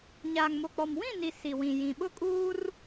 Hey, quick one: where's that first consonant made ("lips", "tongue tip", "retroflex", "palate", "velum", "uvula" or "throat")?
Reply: palate